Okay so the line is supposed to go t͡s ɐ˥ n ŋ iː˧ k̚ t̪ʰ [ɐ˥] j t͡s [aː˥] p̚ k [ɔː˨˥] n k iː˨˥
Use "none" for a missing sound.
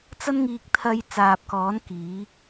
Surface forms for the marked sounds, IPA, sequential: ɐ˧, aː˨, ɔː˨˥

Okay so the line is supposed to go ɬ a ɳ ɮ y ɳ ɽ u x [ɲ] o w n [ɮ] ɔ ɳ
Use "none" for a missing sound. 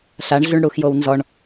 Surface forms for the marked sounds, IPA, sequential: j, z

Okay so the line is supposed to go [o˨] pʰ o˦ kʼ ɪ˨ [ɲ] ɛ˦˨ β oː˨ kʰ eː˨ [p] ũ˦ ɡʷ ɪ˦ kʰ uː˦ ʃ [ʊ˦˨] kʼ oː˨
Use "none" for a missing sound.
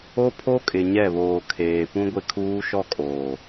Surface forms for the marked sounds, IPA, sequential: o˦, ɲ, p, ɔ˦˨

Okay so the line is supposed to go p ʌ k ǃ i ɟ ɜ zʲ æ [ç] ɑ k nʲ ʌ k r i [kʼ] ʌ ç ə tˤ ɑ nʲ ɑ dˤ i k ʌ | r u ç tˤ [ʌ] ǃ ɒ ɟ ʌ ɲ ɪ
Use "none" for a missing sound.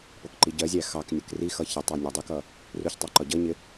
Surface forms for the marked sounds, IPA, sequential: x, x, ɑ

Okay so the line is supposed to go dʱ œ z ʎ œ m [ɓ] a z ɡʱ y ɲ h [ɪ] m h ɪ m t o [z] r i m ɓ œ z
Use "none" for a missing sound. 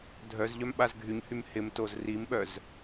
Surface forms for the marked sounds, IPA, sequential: ɓ, y, z

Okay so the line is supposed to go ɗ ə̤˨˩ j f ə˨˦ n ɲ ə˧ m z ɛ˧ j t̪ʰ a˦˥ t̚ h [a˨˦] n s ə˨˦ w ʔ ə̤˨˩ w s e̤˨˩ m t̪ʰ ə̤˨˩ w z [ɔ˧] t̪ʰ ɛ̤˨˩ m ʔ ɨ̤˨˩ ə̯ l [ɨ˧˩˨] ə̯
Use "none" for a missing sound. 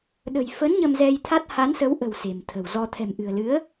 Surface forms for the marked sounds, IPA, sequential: a˨˦, ɔ˧, ɨ˨˦

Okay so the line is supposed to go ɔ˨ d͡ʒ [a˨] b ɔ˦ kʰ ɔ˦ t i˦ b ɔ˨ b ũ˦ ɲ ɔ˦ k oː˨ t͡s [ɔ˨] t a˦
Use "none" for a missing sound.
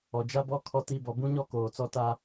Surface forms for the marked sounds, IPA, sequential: a˦, ɔ˦

